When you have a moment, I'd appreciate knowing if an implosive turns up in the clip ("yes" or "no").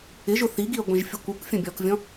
no